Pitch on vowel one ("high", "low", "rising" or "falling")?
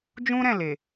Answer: high